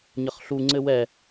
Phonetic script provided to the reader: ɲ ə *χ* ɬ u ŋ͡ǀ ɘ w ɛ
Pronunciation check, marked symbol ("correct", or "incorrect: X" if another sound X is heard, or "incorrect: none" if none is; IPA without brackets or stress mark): correct